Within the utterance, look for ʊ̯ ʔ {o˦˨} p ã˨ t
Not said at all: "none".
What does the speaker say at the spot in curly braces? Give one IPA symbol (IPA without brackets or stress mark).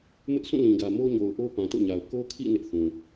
o˦